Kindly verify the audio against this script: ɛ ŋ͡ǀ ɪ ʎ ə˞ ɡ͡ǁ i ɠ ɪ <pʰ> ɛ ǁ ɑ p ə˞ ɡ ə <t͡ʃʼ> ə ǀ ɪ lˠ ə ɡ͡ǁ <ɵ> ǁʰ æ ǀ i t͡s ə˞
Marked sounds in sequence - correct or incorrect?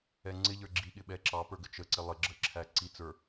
incorrect: ɓ, incorrect: t͡ʃ, incorrect: ə

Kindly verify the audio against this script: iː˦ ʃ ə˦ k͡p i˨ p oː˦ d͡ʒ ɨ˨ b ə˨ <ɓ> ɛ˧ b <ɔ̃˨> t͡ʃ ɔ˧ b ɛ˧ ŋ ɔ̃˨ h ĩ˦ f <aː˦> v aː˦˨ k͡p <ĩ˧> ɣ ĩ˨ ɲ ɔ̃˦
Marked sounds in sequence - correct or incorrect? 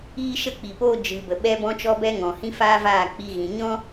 correct, incorrect: ɔ̃˧, correct, incorrect: i˧

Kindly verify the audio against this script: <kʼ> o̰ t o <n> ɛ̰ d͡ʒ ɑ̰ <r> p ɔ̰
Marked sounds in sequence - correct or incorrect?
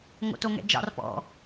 incorrect: ŋ, incorrect: ŋ, correct

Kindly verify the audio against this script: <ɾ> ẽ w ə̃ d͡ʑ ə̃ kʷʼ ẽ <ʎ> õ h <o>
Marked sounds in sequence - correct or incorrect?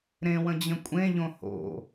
correct, correct, incorrect: o̰

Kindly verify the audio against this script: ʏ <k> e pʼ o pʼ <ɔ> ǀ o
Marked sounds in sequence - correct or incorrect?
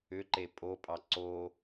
incorrect: ǃ, incorrect: ɑ

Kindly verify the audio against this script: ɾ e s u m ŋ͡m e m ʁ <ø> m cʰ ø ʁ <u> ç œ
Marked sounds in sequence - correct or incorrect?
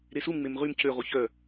incorrect: y, correct

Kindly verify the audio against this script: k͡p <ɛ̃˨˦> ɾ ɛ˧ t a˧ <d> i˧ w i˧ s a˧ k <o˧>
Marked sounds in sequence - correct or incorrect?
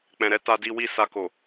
incorrect: ɛ̃˨, correct, incorrect: o˨

